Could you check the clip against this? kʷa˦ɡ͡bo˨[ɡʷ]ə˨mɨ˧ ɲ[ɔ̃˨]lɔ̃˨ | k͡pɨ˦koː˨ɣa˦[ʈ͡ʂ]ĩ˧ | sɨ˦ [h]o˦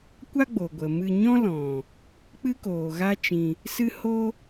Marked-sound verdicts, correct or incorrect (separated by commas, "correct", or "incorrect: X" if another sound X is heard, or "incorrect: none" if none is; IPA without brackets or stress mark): correct, incorrect: ɔ̃˦, incorrect: t͡ʃ, correct